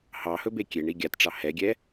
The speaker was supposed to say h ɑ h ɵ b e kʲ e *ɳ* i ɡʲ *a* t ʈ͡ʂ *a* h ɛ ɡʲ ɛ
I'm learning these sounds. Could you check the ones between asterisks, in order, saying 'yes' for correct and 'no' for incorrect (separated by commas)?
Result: yes, yes, no